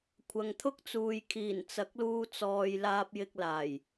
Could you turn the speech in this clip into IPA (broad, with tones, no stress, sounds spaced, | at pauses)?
kʷʰ ɐ˨ ŋ t̪ʰ ʊ˥ k̚ t͡s uː˨ j kʰ iː˨˩ n t͡s ɐ˨˥ k̚ l uː˧ t͡s ɔː˨ j l aː˧ p̚ j ɪ˧ k̚ l aː˨˩ j